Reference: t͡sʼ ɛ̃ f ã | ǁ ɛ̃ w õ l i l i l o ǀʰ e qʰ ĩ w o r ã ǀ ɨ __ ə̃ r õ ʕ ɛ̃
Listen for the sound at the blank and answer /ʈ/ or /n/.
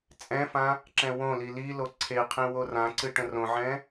ʈ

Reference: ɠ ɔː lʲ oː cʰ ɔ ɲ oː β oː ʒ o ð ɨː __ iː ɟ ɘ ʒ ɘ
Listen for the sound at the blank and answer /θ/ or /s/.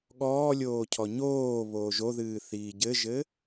θ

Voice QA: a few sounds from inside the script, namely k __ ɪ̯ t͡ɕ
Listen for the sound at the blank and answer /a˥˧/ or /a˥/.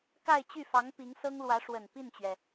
a˥˧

